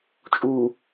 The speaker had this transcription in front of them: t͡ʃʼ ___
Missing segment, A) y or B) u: B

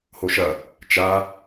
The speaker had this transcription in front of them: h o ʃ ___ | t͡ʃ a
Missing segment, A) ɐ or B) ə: A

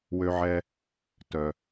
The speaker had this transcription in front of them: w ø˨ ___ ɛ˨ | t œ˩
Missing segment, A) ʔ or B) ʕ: B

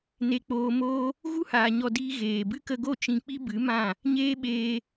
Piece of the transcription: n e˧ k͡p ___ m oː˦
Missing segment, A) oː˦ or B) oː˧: B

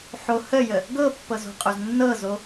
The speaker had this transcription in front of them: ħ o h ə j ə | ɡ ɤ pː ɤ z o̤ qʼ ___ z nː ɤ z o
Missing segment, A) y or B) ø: B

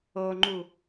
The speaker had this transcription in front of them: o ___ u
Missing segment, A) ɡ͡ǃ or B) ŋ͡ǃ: B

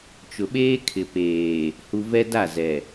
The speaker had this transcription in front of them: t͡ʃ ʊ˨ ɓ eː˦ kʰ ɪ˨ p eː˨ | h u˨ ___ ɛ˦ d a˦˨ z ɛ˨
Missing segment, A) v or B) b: A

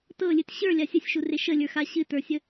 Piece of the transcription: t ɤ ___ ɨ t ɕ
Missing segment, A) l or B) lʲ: B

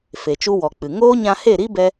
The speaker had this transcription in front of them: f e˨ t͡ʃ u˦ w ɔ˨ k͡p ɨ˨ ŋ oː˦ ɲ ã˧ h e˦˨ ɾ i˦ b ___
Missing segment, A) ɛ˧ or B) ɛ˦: A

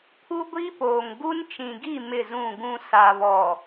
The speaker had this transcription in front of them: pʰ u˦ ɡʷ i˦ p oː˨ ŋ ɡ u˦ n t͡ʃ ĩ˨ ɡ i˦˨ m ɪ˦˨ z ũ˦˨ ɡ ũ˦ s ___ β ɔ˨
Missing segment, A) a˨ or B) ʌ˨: A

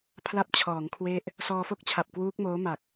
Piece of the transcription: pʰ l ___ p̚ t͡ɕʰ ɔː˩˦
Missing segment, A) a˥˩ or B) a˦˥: B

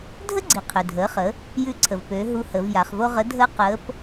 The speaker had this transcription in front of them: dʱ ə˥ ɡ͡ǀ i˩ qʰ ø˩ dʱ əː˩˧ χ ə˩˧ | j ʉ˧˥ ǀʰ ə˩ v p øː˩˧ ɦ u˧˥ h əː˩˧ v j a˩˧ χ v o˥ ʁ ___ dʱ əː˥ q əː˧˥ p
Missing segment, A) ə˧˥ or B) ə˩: A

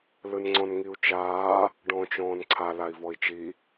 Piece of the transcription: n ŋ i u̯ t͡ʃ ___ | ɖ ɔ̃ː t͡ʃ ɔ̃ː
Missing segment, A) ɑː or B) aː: B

